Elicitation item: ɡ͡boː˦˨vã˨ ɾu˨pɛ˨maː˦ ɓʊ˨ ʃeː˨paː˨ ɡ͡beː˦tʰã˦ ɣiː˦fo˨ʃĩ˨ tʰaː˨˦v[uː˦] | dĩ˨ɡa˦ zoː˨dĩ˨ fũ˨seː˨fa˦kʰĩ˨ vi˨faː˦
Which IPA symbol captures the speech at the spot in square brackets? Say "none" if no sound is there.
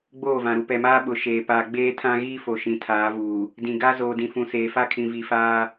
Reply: uː˨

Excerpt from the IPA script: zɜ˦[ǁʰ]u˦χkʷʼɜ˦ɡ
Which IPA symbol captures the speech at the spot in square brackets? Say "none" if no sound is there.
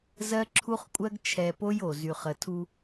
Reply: ǁʰ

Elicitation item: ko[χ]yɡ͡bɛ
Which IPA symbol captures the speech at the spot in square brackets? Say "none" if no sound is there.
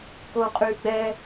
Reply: qʼ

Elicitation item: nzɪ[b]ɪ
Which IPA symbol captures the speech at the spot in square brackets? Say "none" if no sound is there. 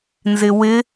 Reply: w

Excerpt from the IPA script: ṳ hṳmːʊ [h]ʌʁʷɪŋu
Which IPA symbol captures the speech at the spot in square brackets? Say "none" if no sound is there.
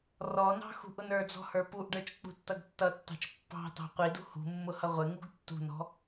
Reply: h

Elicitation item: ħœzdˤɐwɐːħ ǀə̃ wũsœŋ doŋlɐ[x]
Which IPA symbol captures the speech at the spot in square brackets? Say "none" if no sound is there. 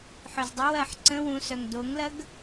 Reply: ɡ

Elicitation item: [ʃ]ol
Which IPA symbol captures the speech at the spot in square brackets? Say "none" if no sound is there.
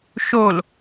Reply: ʃ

